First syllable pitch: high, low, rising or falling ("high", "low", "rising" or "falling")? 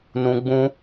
high